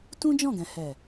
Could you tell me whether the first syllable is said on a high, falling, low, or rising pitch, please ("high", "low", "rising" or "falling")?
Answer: high